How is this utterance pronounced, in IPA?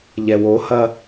ʎ ɛ w o h ɐ

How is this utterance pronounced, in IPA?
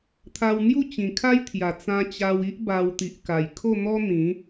t̪ʰ a˧ w n̪ j u˥˧ t͡ɕ ĩ˨˩ kʰ a˦ j t̪ʰ j a˨˩ t͡s ã˧ t͡ɕ a˧ w i˦ ʔ b a˧ w t̪ i˨ ʔ k a˨˩ j kʰ o˥˧ n̪ ɔ˦ n̪ ĩ˨˦

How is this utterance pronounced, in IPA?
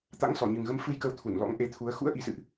t̪ a̰˧˥ ŋ s ɔ˧˩ ɲ ɨ˨˩ ŋ ɣ ə˨˦ m f ɨ˧ j k ə˨˦ w t̪ʰ u˧˩ n l ɔ̰˧˥ ŋ ʔ e˨˦ t̪ʰ u˨˦ ə̯ x ṵ˧˥ ə̯ ʔ i˨˩ s ɨ̰˧˨ ʔ

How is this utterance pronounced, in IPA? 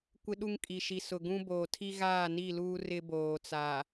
kʷ ɪ˦ ɗ u˦ ŋ kʼ i˨ ʃ i˨ s ʊ˨ ɡ ũ˦ b oː˨ tʰ i˦ ɣ aː˦˨ n i˦˨ l uː˦ r ɪ˦ b oː˨ t͡s a˨

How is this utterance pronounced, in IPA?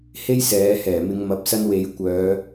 h e˥ j s ɛː˨˧ h ɛː˨˩ m ɪ˨˧ ŋ m ɐ˨˥ p̚ s ɐ˥ n w e˨˧ j kʷ œː˨˧

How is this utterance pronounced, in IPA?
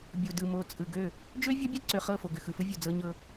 bʲ u˨ d ɯ˨ m o˨ t͡sʼ ɯ˨ ɡ ø˦˨ | d͡ʒ ø˦ vʲ ɔ˦ bʲ ɔ˦ ǀ ø˨ χ ɤ˦˨ f o˨ ɡ ʏ˨ x ɯ˨ f ɯ˦ vʲ o˨ d͡z ɤ˦ ɲ ɤ˦

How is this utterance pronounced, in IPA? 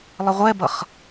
lˠ ə ʁʷ ɛ b ʌ χ

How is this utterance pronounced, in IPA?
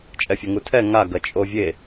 t͡ʃʼ ɛ fʲ ɐ ŋ u tʰ ɛ ŋ a ɡ ɐ t͡ʃʼ o vʲ e

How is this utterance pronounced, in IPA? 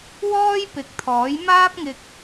w ɔː˥ j p ɪ˨˥ k̚ t̪ʰ ɔː˨˥ j m aː˥ p̚ ŋ ɪ˧ k̚

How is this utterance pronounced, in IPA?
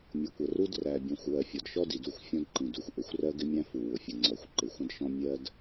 mʲ ʊ˨˦ kʷ ə˨ r u˦ d r æ˨ bʲ ɔ̃˨ xʷ w ɜ˨ fʲ ɔ˨ d ʃ ɔ˦ d i˨ d u˦˨ xʷ fʲ ɔ̃˦ d ǃ ĩ˨ d u˨ xʷ ʔ ɪ˨ xʷ r ɜ˦ ɡ ɪ˦ mʲ æ̃˦ f u˨ w ʊ˨ fʲ ə˨ ŋ͡ǀ ɔ˨ xʷ ǃ ɪ˨ xʷ ə̃˦ d ʃ ɔ̃˦ mʲ ɜ˦ d

